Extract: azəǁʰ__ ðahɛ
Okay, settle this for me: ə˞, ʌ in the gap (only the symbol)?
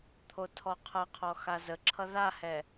ʌ